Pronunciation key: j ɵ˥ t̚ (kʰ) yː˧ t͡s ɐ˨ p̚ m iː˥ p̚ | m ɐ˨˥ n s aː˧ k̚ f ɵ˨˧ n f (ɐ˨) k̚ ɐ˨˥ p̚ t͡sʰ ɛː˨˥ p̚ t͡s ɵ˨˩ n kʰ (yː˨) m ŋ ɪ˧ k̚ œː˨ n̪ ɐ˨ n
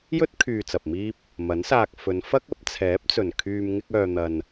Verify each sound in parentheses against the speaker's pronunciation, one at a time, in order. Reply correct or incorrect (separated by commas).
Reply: correct, incorrect, correct